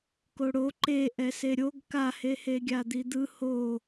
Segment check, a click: present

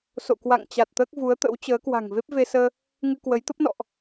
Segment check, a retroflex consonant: absent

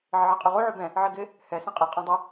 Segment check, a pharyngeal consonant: present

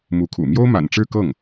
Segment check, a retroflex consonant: present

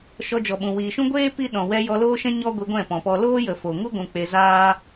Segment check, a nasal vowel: present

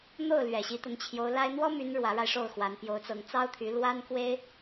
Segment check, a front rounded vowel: present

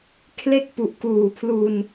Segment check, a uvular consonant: absent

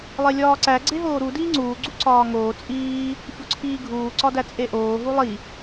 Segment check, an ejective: present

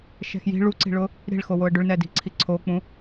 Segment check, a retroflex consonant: present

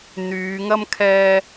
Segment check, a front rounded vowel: present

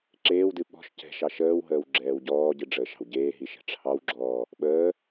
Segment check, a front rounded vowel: absent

